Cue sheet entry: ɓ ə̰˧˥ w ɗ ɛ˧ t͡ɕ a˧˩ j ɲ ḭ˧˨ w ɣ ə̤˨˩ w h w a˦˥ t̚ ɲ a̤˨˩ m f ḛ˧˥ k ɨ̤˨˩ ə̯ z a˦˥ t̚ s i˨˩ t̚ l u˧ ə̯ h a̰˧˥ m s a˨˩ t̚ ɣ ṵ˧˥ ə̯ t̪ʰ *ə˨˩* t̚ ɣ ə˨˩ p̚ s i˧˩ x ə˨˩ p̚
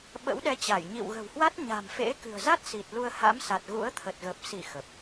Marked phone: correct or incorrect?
correct